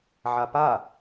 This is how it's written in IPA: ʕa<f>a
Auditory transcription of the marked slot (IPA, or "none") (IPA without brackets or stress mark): p